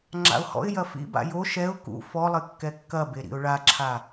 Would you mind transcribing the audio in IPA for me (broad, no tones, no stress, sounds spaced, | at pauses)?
ŋ͡ǁ a̰ ʊ̯ h ɔ̰ ɪ̯ j ɐ f ḭ b a̰ j o ʃ ɛ ʊ̯ k ṵ f ɔ lˠ ɘ kː ɛ kː ɐ b e ɾ ḭ ʊ̯ ɭ a ǁʰ a